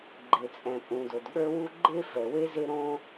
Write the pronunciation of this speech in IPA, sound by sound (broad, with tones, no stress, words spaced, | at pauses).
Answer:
ɡ͡ǃe˩t͡sʼɛ̃˩pʼũ˩ do˩dɠə˞˥wu˥ ɡ͡ǃe˥fɛ˩we˥ ze˥ɾõ˥